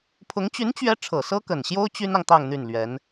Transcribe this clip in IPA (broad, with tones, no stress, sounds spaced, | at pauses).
pʰ ʊ˧˥ ŋ t͡ɕ y˧˥ n t͡ɕ ɥ ɛ˧˥ ʈ͡ʂʰ ɤ˨˩ s ɤ˥ k ə˨˩ n ɕ j o˥ ʊ̯ t͡ɕ y˥ n ɑ˨ ŋ t̪ ɑ˥˧ ŋ n̪ y˥˩ n l ɥ ɛ˧˥ n